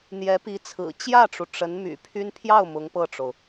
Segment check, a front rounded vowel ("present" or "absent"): present